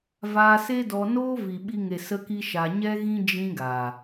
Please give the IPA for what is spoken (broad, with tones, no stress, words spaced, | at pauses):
vaː˧se˦ dɔ˧noː˦ vi˨ɓi˧ŋe˨ sə˧ki˧ ʃa˧ ɲɛ˦ɣĩ˦ d͡ʒĩ˦ɡaː˨